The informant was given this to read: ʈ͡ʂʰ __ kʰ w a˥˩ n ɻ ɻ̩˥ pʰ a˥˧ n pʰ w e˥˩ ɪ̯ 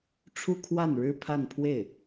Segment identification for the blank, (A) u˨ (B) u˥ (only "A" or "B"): B